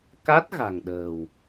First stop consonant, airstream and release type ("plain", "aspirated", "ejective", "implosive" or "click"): plain